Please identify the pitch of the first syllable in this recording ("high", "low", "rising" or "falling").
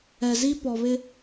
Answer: low